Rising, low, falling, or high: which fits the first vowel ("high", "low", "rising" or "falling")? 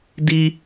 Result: high